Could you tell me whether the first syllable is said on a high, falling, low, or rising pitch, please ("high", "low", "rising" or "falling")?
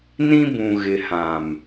high